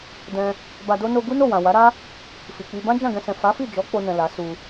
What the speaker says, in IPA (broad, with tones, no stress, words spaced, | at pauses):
dɛ̃˧ | ba˧do˦ no˧ ɡu˦no˦˨wã˨ wa˨˦ɾa˦ | fi˨k͡pi˧ bã˦d͡ʒã˦˨ɡɛ̃˧sɛ̃˨ fa˨˦fi˦˨d͡ʒɔ˨˦ k͡po˧nɛ̃˨ la˨˦ su˧